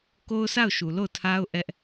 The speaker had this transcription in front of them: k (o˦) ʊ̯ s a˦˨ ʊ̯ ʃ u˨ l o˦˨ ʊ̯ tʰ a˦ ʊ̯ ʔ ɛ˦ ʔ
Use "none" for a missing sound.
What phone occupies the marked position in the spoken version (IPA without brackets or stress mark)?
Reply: o˦